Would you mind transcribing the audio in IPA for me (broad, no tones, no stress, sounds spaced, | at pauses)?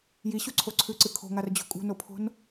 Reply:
j i ɕ u ǀʰ o ǀʰ ʉ ǀ ɨ kʰ o̤ ŋ a r d͡ʑ o̤ kʼ ṳ n o pʰ o̤ n